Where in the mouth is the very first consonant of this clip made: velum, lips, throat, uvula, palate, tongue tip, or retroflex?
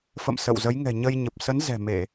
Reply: lips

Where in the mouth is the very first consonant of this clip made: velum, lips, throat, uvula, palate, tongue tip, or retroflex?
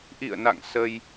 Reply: throat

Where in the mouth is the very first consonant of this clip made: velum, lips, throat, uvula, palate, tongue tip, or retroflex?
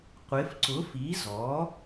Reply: uvula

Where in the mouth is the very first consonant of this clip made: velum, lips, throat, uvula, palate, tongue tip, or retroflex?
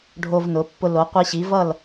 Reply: retroflex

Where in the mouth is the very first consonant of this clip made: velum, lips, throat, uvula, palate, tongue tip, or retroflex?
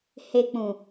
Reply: throat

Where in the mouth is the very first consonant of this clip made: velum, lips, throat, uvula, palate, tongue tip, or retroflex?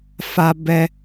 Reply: lips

